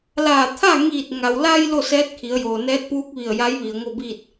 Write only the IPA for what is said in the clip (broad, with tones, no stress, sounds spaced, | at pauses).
l aː˧˩ t̪ʰ a˥˨ ŋ iː˧˩ t̚ ŋ a˩ w l a˧ j l o˥˨ s ɛː˧˥ t̚ kʰ i˩˧ ə̯ j oː˩ n ɛː˧˥ t̚ p uː˧˥ k̚ ʋ i˧˩ ə̯ j a˧˥ j ʋ i˩ ə̯ ŋ o˥˨ b iː˥˨ t̚